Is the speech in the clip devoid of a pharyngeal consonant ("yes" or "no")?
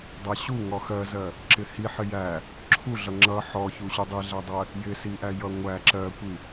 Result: no